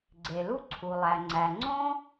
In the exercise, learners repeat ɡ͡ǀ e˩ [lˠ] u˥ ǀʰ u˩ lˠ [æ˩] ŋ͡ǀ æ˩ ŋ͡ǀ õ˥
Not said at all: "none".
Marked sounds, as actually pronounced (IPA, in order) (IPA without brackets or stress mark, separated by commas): l, æ˩